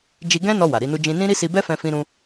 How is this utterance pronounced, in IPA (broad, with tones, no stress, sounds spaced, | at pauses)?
d͡ʒ i˧ ɡ ɛ̃˦ n ɔ˧ w a˨ ɾ i˨˦ n u˦ d͡ʒ ĩ˧ n ĩ˦ ɾ i˦ s i˧ b ɛ˦ f ɛ̃˧ f ĩ˦ ɾ ũ˦